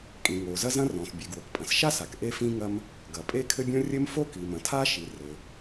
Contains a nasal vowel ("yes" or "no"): yes